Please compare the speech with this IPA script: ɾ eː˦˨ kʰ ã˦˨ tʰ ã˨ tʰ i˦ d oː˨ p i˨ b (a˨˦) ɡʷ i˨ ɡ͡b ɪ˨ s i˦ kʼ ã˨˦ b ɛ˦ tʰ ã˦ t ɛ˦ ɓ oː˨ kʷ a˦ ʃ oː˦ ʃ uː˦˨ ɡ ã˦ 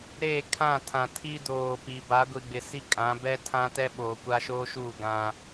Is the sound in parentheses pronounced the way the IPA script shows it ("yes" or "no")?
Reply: yes